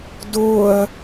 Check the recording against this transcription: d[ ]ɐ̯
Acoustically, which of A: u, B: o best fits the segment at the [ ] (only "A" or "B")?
B